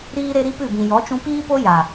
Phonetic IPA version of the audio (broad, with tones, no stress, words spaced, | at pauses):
ɾiː˦ɾe˦ɾi˦pɨ˦˨ bĩ˨jɔ˨˦t͡ʃũ˧ piː˦po˦ja˨